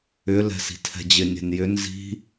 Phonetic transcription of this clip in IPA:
ʏ l ɛ̤ s i̤ tʰ ɛ̤ d͡ʑ ɪ nʲ ɛ̤ n j ʏ n z i̤

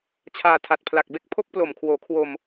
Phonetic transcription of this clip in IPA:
t͡ɕʰ aː˧ tʰ a˨˩ t̚ pʰ l a˨˩ k̚ b e˥˩ k̚ pʰ o˥˩ k̚ p l o˨˩ m kʰ w oː˩˦ kʰ w o˧ m

